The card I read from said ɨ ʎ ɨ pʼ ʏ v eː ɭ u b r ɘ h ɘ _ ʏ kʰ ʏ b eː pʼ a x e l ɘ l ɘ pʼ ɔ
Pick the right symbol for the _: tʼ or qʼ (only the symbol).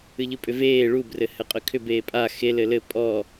qʼ